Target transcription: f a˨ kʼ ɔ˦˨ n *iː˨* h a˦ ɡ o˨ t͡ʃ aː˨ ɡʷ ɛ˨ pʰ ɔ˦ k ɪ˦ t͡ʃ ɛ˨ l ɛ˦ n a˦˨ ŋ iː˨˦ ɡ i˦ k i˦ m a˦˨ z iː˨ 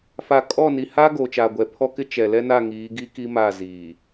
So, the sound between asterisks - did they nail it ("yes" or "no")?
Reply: no